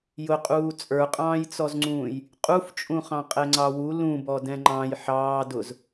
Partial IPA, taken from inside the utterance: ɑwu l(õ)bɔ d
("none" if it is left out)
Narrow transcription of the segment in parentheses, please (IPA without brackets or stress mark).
ũ